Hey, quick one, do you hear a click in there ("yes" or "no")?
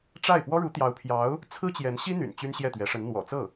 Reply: no